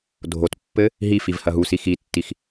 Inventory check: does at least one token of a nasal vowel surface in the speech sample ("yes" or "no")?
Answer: no